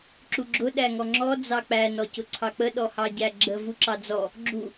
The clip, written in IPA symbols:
ǁuɡ͡ǁʊ ɗæŋɔŋ͡ǁɔ d͡zɑk͡pæ nɔcʊǀʰɑk͡pə ɗɔhɑɟæɡ͡ǁə vuǁɑd͡zɔ | ɡ͡ǁu

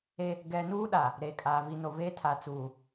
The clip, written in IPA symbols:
e˦ | ɡɛ˦ nuː˦ɗa˨ | ɾe˨kʼaː˨ vi˨no˨veː˦ tʰa˨t͡suː˨

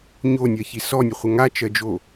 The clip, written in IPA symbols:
ɲonʲɜçi sɔnʲəχʷə ŋat͡ʃɜd͡ʒo

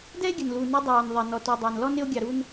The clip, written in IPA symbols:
dɛ˦e̯ɡʲə˩nlu˩ nu˨dˤɑː˩n ðˤɛ˩nɔ˩ tu˩dˤæ˩nlɔ˦n ɪ˦o̯ɡʲɑ˨ɾu˦n

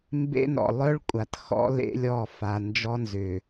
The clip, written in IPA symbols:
mbḛ˦nɔ̰˨ lˠœ˦ɭ kʷʼa˨txɔ̰˦lḛ˦lʲɔ˦˨ fa˨ nd͡ʒɔ˦nzʏ˨

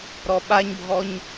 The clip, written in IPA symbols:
ɾɔɓaɲbʱɔɲ

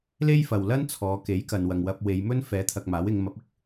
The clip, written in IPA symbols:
le˥jfɐ˨wlɐ˥n t͡sʰɔː˨˧ke˨˥jkɐ˨nwɐ˨ŋ wɐ˧p̚we˨˧j mɵ˥nfɛː˨˥t̪ʰɐ˨k̚ maː˨˥wɪ˨˧ŋmɐ˨˥p̚ɪ˨k̚

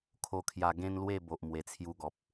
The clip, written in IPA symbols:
kʰo˧kʰja˧ ɡẽ˦nlwe˥˧ bo˨ʔmwe˨˩t͡sʰju˧ɡɔ˨p̚

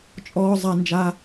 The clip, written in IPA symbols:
t͡ʃʼɔː˥ zˤa˥nd͡ʒa˥

